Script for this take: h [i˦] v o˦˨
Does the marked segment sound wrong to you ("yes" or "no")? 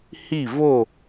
yes